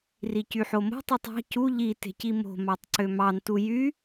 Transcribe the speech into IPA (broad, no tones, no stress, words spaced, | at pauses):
ricyħomo̤ tˤitˤɑ̤ cu ʎi te̤cimo̤ mɑtˤǀømɑn tujy